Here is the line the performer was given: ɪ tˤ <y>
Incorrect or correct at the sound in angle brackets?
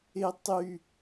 correct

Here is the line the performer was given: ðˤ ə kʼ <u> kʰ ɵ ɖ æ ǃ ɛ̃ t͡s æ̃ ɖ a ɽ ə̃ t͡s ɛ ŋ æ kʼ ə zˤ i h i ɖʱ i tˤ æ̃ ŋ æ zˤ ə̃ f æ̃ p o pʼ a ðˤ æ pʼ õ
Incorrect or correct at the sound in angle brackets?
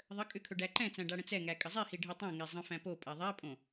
incorrect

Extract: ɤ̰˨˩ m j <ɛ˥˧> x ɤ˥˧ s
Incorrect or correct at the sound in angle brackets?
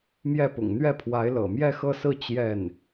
correct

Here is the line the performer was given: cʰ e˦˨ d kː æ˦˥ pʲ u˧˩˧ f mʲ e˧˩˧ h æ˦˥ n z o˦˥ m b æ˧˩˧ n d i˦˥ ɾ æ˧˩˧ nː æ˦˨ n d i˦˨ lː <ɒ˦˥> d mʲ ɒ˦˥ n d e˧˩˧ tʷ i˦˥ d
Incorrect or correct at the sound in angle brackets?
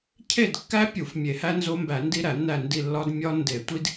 correct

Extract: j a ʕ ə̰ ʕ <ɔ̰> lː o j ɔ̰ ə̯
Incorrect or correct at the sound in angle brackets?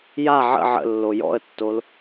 incorrect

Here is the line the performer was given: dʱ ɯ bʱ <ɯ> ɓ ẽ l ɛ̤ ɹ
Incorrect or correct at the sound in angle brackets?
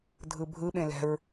correct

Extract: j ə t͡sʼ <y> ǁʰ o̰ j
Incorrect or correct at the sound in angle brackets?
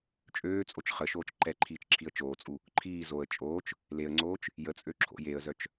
incorrect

